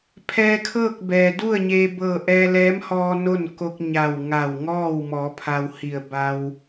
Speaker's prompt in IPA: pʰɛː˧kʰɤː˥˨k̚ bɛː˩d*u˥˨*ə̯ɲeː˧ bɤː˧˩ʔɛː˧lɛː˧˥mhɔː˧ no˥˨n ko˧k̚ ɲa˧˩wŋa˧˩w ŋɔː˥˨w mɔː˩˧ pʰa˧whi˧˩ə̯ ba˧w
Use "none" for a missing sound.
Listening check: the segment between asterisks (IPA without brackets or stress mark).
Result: u˥˨